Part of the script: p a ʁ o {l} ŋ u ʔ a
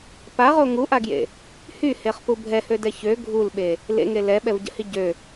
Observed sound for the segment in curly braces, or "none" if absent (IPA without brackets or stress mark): none